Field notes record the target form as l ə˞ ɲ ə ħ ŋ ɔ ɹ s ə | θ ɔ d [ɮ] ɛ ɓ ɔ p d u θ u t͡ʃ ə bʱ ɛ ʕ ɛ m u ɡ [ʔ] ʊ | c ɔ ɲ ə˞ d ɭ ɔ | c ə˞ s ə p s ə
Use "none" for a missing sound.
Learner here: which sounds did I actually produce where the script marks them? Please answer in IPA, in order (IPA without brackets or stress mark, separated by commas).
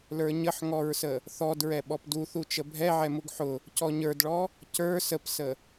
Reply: ɹ, ħ